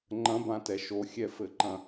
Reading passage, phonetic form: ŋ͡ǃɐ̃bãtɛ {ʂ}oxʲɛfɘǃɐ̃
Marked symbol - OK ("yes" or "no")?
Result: no